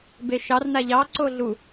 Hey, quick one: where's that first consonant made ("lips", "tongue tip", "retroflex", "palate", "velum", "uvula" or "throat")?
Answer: lips